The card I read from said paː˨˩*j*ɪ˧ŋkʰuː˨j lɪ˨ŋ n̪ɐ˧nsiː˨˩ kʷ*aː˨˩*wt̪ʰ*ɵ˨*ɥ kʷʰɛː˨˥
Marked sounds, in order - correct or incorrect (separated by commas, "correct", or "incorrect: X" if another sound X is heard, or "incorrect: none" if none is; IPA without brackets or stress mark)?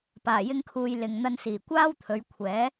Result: correct, incorrect: aː˥, incorrect: ɵ˨˧